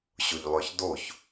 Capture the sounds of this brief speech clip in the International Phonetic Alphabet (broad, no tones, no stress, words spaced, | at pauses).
ɕʊʎlˠœçdoç